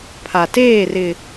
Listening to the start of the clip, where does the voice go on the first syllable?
low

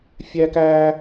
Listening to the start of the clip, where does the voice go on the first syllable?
high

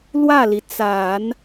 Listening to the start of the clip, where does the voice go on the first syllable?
falling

